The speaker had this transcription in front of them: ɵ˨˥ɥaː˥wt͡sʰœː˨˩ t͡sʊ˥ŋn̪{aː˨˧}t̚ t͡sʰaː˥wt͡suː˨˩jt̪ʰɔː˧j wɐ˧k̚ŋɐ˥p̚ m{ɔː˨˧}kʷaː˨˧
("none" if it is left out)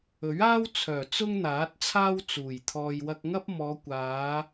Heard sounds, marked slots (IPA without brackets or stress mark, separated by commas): aː˨˥, ɔː˨˧